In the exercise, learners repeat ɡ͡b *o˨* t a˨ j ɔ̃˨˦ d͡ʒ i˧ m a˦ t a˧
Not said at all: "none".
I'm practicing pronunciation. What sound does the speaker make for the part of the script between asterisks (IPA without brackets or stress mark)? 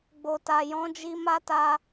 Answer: o˨